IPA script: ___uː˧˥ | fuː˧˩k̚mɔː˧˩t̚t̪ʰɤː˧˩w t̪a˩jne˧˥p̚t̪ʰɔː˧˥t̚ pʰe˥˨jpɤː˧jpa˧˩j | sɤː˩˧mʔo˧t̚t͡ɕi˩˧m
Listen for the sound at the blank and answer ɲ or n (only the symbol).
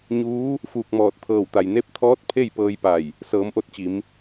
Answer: ɲ